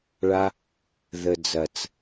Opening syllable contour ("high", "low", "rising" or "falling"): high